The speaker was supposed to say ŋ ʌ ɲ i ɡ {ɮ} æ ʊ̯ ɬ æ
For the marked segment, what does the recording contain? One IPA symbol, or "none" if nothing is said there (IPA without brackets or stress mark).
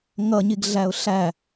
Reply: ɮ